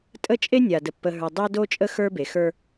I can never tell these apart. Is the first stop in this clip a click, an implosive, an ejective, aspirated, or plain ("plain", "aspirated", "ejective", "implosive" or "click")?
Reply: ejective